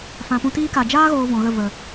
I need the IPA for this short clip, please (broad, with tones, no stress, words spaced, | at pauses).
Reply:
fã˨pũ˧tiː˦ka˨ d͡ʒaː˦ɣoː˨ vɔ̃˨ɣə˦˨və˨